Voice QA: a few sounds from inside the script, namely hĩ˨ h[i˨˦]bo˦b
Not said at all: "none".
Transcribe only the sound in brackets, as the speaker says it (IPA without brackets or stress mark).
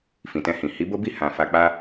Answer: i˨˦